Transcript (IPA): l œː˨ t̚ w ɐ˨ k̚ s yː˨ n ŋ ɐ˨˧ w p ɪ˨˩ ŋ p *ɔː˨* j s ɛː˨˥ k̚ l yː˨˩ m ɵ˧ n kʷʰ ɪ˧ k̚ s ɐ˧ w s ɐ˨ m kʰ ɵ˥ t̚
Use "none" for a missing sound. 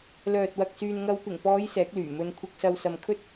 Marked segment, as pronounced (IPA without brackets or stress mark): ɔː˨˧